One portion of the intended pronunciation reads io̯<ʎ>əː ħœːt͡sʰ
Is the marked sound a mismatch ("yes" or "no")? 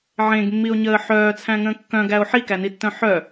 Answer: yes